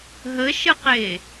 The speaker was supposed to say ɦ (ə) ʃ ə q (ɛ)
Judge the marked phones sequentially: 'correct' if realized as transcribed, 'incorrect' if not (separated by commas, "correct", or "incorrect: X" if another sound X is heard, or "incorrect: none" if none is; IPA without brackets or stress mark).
correct, incorrect: e